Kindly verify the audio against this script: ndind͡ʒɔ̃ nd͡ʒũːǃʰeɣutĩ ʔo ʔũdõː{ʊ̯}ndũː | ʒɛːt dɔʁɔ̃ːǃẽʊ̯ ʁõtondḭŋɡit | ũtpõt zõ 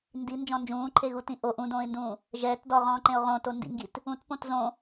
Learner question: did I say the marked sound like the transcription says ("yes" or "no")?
no